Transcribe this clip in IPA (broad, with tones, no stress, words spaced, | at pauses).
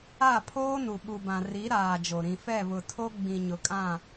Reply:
a˦˨pʰoː˦nu˨ ɓu˨bã˨ ri˨˦ɾaː˨ d͡ʒo˨ ɾĩ˨ fɛ˦˨βʊ˨tʰo˦ ɡ͡bĩ˨ɲʊ˨kʼã˦˨